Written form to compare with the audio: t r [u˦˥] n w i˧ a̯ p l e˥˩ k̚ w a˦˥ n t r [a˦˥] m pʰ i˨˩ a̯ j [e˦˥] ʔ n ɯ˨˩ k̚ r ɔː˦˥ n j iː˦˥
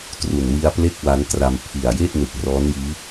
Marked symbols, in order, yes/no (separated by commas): no, no, no